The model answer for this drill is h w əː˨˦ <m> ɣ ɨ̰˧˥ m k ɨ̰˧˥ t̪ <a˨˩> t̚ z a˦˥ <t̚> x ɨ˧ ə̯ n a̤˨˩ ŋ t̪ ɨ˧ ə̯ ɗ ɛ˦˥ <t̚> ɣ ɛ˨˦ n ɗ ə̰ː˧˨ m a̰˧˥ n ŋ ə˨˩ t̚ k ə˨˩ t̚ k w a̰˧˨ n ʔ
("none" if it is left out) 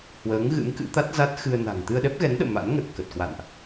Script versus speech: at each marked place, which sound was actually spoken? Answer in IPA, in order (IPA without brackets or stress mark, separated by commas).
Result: ŋ, a˦˥, t̚, p̚